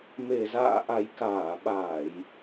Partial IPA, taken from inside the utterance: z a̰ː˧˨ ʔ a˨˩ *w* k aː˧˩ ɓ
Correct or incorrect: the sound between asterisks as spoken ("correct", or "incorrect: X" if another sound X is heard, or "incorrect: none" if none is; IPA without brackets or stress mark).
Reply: incorrect: j